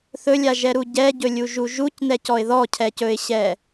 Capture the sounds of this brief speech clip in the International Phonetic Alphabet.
θɵlʲaʒɛɾu ɟɛɟɵlʲuʒu ʒucnɛcɔɪ̯ ðɔcʰɛcɵɪ̯ɕɛ

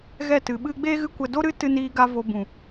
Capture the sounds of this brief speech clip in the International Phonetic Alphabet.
ɣɛ˦˨tɨ˨ɓɨ˦ ɡ͡beː˦ ɣɨ˧kʷə˨do˦ɾɨ˦ tɨ˧niː˧ ɡa˦vo˧bũ˨

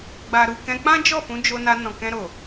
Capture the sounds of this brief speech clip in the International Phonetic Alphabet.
ɡ͡ba˨ɾu˨ kɛ̃˧k͡pã˦d͡ʒɔ˦˨ fũ˨˦d͡ʒo˧na˧ nɔ̃˨kɛ̃˧ɾo˨

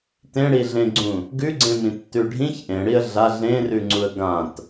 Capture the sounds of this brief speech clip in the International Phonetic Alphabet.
tẽɽiɮẽɡ͡ǀũ | ɡʉɡ͡ǀẽmĩtːʉ ɖʱĩç ʔẽɽiə̯ ɮa ɮẽrʉŋ͡ǀuə̯ ɡãt

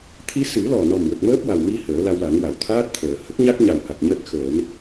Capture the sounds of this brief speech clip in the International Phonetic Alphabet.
t̪ʰi˧ sɨ˨˩˦lɔ˨˩nɔ˨˩m wə˨˩k̚məː˦˥p̚ wa˨˩wmi˧ həː˨˩˦la˧wla˨˩˦ŋwa˨˩˦w t̪ʰaː˦˥t̚ t̪ʰəː˨˩˨ hə˦˥k̚ɲa˦˥k̚ɲa˨˩w ha˨˩k̚ɲəː˦˥t̚ xəː˨˩˦n

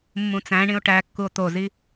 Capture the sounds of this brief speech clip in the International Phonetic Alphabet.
mːũt͡sæ̃ɳĩo̯ ʈækːuo̯ t̪ozi

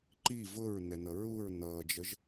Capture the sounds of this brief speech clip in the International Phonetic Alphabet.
ǃi vʊɹnɛnʌ ɹuɹ nʌːd͡ʒəʒ

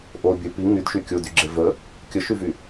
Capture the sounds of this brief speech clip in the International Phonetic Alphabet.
ʔobʲœ pi ŋydʃy kʲodyɡ͡ǁe və | kʲəʃyvy

